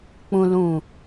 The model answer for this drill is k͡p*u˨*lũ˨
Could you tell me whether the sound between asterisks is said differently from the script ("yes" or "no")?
yes